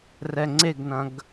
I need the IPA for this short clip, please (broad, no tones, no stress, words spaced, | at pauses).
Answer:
rɛŋ͡ǀeɡnɐ̃ɡ